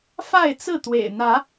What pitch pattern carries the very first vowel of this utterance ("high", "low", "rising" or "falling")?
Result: falling